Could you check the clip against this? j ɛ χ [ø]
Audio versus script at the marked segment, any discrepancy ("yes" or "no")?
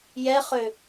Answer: no